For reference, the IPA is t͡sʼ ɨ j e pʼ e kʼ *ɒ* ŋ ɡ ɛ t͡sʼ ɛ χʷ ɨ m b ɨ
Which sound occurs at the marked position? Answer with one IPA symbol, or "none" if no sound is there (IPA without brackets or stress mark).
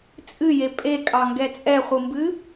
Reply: ɑ